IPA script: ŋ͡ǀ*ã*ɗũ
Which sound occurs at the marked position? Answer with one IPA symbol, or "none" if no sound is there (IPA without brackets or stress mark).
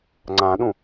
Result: ã